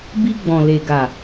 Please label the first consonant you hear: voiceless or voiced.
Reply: voiced